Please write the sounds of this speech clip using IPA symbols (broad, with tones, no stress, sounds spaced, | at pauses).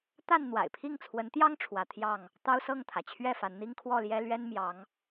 t̪ a˥˨ n n̪ w a̰˨˩ ɪ̯ pʰ i˥˨ ŋ t͡sʰ w ə˨˦ n t̪ j ɑ˦ ŋ ʈ͡ʂʰ w ä˨˦ t̪ʰ j ɑ˥˨ ŋ | t̪ ɑ˦ ʊ̯ s ɤ˥˨ ŋ t̪ʰ ä˩ t͡ɕʰ ɥ ɛ˥˨ f a˨˦ n n̪ i˦ ŋ kʰ w ɔ˥˨ l j ɛ˦ l ɥ ɛ˦ n m j ɑ˨˦ ŋ